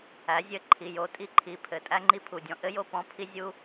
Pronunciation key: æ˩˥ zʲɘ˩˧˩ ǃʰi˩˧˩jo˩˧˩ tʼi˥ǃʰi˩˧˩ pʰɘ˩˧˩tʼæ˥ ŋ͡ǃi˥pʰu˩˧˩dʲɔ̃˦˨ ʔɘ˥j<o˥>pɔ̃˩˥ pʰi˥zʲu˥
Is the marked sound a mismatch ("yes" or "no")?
yes